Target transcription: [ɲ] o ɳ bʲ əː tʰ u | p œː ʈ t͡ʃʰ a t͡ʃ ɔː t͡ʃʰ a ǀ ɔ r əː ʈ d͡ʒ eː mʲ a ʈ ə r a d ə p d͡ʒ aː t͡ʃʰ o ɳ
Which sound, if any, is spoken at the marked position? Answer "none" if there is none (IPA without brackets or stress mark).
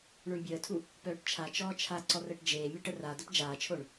ɳ